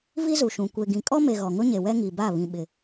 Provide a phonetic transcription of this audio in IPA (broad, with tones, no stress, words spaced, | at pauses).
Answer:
vi˦zu˨ʃũ˨ kʷe˨ɡĩ˨kʼɔ˦me˨ ɣɔ˨ŋʊ˦ɲe˨ wɛ˦ŋi˨ba˦˨ βĩ˨ ɓɪ˨